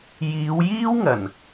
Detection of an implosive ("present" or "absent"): absent